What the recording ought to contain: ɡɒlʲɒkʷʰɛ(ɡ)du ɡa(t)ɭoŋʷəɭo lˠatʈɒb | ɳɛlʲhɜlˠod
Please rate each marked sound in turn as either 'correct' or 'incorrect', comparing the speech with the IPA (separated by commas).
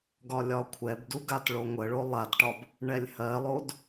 incorrect, correct